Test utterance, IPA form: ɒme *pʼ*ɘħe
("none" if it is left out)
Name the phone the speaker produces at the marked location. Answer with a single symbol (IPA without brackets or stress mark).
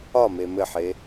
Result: m